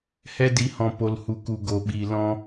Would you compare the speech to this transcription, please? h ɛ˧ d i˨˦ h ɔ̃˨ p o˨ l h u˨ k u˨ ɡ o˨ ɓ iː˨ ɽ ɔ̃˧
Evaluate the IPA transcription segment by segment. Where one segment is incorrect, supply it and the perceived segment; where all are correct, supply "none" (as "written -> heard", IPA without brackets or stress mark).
ɽ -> l